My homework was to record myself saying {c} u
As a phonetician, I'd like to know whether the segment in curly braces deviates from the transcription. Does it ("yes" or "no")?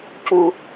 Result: no